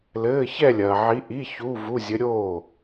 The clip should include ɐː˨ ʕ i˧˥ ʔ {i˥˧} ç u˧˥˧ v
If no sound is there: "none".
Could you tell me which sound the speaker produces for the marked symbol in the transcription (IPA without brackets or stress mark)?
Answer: i˧˥˧